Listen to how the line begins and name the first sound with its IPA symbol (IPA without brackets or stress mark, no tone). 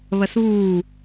β